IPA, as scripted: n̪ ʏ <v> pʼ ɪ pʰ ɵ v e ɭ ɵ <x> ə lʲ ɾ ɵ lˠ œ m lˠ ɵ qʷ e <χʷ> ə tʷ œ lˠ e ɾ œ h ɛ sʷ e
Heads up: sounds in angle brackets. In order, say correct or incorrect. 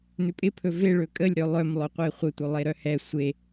incorrect: none, incorrect: kʼ, correct

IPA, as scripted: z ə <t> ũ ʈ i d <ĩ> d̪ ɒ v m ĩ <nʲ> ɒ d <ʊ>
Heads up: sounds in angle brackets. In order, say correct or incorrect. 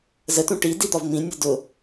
correct, incorrect: i, correct, correct

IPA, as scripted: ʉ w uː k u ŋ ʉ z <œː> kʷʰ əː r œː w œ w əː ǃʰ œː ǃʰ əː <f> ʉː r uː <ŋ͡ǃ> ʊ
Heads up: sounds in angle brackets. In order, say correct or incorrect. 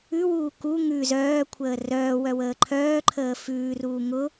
correct, correct, incorrect: ŋ

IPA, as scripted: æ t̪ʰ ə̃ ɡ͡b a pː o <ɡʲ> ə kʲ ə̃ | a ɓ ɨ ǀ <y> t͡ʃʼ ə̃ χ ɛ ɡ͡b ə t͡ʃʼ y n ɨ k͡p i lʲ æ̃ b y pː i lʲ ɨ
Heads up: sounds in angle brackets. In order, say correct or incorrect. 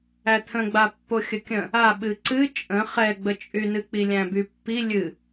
incorrect: xʲ, incorrect: ɨ

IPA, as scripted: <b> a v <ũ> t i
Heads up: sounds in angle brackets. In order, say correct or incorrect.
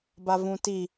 correct, correct

